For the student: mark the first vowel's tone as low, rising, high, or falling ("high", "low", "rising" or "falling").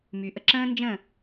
low